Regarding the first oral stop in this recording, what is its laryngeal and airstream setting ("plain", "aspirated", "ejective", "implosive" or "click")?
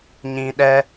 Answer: implosive